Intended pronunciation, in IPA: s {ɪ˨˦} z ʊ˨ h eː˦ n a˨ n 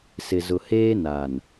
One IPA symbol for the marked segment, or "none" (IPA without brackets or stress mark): ɪ˨